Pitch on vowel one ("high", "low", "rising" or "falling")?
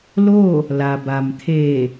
falling